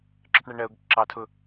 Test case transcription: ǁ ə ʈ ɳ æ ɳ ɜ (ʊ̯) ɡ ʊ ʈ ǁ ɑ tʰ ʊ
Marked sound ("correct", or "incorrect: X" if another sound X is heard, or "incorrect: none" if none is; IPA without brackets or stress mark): correct